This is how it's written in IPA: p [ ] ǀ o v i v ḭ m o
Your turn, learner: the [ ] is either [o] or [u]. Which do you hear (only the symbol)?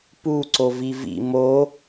u